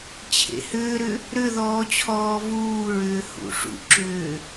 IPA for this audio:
t͡ɕʰḛhʏːɾʏ | ɾʏðɔː t͡ɕʰɔːvuːɹʏː hṵʂṵǁʏː

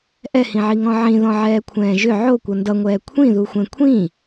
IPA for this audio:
ʔɛhĩʕiŋɔ̃ ʕĩðɔ̃ʕɛːkʷʰɛ̃ː ʒʏ ʕokʷʌ ndʌŋʷɛː kʷʰĩðuxʷɛ̃ kʷʰĩ

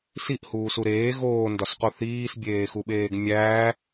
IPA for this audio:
siʔhuːsu ɾeː ɣoːndɒsqo θiːsbʲeːxuɓeːɡ mʲæː

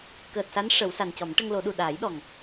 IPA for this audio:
kəː˨˩t̚sa˧˥n ʂə˨˩˦w sa˨˩ncɔ˨˩˦m ʈə˧ŋlo˨˩˦ɗu˨˩ ɗaː˨˩˦jɗɔ˨˩ŋ

